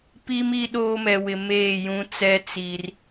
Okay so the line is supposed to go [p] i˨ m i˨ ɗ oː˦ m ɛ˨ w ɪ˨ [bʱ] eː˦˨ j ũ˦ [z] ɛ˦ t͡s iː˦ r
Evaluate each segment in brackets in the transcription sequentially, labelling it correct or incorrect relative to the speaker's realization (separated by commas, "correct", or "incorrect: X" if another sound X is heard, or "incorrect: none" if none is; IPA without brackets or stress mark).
correct, incorrect: m, incorrect: t͡s